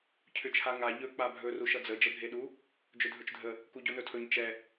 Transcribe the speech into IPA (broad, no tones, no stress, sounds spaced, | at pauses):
cʰ ʏ t͡ʃʰ a ŋ a ʎ ɵ k͡p a bʱ ɵ r u ʃ ʌ d͡z ə d͡ʒ ə bʱ e ɗ u | d͡ʒ ʏ dʱ ɵ t͡ʃ dʱ ə | k u ɟ o n ɵ tʰ ɵ ɲ t͡ʃ ɛ